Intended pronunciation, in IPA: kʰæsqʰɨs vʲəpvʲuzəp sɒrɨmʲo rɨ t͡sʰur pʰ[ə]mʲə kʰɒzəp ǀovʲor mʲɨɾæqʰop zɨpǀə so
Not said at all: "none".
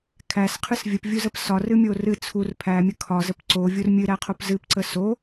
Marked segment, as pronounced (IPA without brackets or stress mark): æ